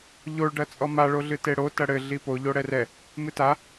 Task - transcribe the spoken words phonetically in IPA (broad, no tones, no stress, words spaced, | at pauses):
ʎoɭɖɐ t͡sʼɔmaɭoɮɨ teɽo tɐɽɘ ɮipo ʎoɽɛrɛ | mɨta